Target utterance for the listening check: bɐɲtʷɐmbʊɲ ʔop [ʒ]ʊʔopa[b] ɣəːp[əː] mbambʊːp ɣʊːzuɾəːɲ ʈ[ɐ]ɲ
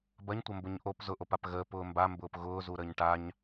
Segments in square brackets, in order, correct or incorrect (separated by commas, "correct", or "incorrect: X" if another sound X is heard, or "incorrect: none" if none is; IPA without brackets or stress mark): incorrect: z, incorrect: p, incorrect: ʊː, incorrect: a